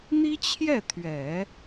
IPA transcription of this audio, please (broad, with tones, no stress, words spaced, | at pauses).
n̪i˥t͡ɕʰjɛ˥˩t̪ʰɥɛ˨˩˦